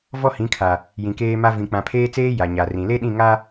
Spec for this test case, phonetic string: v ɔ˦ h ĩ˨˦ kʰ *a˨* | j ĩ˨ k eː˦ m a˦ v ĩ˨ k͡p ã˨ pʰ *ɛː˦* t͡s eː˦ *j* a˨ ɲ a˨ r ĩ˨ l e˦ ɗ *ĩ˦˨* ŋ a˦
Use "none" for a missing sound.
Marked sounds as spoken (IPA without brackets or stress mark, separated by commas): a˨, eː˦, j, ĩ˦˨